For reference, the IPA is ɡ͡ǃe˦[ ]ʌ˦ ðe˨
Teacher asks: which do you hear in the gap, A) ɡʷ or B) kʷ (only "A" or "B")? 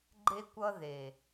B